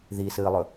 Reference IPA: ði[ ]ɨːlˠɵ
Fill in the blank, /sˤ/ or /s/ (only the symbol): s